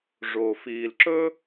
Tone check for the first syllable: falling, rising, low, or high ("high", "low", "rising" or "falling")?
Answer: low